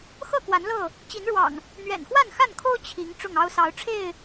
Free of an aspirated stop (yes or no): no